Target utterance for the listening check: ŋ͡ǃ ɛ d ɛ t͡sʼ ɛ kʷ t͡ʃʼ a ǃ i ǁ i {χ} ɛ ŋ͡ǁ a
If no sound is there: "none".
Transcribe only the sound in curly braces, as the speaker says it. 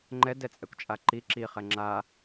χ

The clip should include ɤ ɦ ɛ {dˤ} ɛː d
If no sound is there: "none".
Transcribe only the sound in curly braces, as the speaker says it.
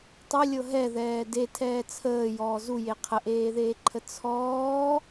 ð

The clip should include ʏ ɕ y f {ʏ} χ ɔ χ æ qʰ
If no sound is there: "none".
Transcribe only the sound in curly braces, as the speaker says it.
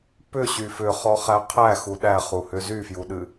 ʏ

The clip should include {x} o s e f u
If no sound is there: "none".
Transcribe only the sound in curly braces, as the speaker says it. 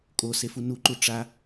kʼ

